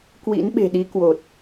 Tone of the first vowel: rising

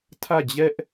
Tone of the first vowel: falling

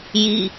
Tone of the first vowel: falling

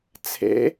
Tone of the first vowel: rising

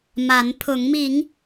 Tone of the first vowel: rising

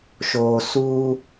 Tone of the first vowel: low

